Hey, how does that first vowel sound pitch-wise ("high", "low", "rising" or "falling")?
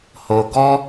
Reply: low